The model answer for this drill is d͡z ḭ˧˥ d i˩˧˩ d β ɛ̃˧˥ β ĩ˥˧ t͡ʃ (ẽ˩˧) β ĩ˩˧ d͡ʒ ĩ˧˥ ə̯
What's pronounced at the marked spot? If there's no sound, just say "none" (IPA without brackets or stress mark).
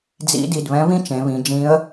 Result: ẽ˩˧